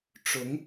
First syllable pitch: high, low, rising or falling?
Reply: rising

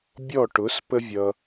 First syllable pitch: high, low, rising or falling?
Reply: falling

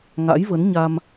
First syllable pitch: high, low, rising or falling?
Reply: rising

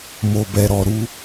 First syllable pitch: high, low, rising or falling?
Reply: low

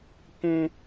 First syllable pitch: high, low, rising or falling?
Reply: high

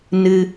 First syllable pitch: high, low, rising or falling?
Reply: high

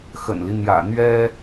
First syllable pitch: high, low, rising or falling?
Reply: low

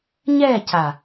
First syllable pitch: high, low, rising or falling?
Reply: falling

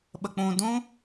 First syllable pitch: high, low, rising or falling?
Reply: low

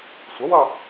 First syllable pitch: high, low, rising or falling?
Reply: rising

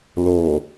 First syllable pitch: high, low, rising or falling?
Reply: low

